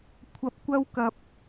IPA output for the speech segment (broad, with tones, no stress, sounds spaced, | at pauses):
kʷʰ ɐ˨ p̚ kʷ ɐ˧ w k ɐ˨ p̚